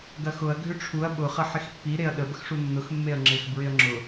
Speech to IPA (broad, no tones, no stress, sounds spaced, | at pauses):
ɡ ɐ x ʊ ɐ̯ ɡʱ ʏ ʈ͡ʂʰ u ɐ̯ ɓ ʊ χ ɐ ħ ɪ x pː i ɾ e ɐ̯ ɗ ə b ə x ʂ u nː ʊ x mː e ɐ̯ ŋ͡ǁ ɪ x b ɹ ɪ ɐ̯ ŋ͡ǁ ʊ